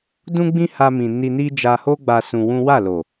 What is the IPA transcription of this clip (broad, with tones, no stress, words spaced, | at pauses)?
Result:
dũ˦ ɡ͡bĩ˦ha˧ mĩ˨ ni˧ni˦ d͡ʒa˧ho˦ɡ͡ba˧ sũ˧wũ˦ wa˦˨lo˨